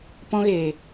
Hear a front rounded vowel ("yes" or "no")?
no